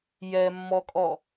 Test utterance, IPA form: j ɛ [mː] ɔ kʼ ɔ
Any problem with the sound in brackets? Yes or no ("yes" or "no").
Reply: no